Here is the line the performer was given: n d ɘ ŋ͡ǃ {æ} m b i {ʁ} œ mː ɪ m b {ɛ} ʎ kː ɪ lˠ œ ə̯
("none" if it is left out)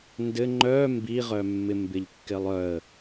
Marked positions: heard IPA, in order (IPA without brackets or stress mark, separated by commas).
œ, ʁ, ɪ